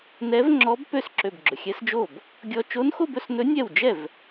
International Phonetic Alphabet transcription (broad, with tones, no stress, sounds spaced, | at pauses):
n ɛ˧˥ v ŋ͡ǁ ɔ˧˥ b p ø˥˧ s ǁ ø˧˩ b ɡ͡ǁ ɵ˩ xʲ ɛ˧˥ s d͡ʒ o˥˩ b | ɡʲ ɔ˧ t͡ʃ o˧˥ n x o˥˧ b ɵ˥˩ s n ɵ˧˥ nʲ ɛ˥˩ w d͡ʒ ɛ˥˩ v